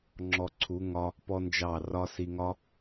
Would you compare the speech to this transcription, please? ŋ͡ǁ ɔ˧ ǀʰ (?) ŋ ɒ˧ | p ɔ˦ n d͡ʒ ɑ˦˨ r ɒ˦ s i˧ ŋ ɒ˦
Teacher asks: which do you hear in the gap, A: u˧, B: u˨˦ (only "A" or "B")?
B